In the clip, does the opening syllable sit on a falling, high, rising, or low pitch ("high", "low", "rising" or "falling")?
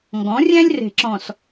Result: rising